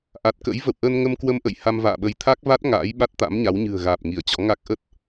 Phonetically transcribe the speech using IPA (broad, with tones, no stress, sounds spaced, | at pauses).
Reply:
ʔ a˨˩ t̚ k ə̰˧˥ j v ə̰˧˨ w ʔ ə˧ n ŋ ə˧ m k w ə˧ m ʔ ə̰˧˨ j h a˧ m v a̰ː˧˨ ɓ ə˨˦ j t̪ʰ a˦˥ k̚ v a˦˥ t̚ ŋ a̰ː˧˥ j ɓ a˦˥ t̚ t̪ a̰˧˥ m ɲ a˨˦ w ɲ ɨ̤˨˩ ə̯ ɣ aː˨˩ p̚ ŋ i˧˩ ə̯ t͡ɕ ɔ̰˧˥ ŋ a˦˥ k̚ ʔ ə˦˥ t̚